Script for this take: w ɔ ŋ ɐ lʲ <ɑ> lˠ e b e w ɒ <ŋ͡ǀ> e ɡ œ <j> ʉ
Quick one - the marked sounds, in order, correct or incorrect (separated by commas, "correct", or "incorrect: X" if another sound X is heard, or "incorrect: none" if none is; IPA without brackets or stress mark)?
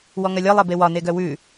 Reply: incorrect: ɒ, incorrect: n, incorrect: w